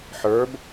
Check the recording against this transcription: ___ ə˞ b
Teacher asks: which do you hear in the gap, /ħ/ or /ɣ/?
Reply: ħ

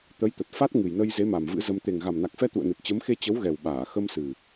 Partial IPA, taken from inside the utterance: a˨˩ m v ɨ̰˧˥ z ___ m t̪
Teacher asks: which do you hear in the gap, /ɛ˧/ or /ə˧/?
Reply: ə˧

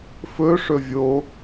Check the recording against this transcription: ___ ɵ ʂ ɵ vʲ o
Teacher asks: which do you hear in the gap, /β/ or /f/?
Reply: f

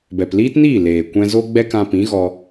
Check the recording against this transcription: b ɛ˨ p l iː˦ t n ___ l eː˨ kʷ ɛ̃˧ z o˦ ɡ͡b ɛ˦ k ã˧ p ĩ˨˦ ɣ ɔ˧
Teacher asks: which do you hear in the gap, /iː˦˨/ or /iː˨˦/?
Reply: iː˦˨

